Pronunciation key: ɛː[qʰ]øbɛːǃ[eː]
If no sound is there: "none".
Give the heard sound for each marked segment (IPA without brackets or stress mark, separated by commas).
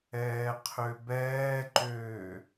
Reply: qʰ, øː